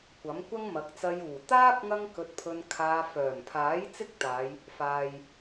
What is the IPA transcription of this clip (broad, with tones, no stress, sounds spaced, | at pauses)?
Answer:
kʷ ɐ˨˥ m kʷ ɐ˥ ŋ m ɐ˨˥ k̚ t͡s ɐ˧ j uː˨˩ t̪ aː˥ p̚ ŋ ɐ˥ ŋ k ɵ˧ t̚ pʰ ɵ˧ n kʰ aː˧ f œː˨˩ m pʰ aː˨˥ j t͡s ɪ˥ k̚ t̪ aː˨˧ j | f aː˨ j